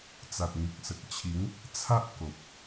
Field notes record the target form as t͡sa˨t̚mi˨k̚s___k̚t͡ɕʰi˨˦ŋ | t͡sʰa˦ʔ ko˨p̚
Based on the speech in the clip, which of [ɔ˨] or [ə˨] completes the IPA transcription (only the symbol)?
ə˨